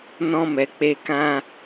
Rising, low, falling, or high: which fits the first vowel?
high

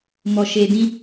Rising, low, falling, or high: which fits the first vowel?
low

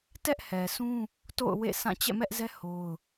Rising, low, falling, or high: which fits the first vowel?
high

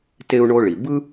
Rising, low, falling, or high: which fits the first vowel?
high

